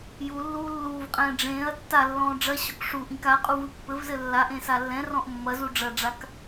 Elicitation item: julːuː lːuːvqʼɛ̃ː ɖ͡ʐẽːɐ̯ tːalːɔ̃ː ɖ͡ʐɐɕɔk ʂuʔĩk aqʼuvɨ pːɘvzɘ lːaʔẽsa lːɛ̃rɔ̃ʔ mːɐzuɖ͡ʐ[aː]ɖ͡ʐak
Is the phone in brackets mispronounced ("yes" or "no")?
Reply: yes